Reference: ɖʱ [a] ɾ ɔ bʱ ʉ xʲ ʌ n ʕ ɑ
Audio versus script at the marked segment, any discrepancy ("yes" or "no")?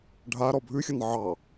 no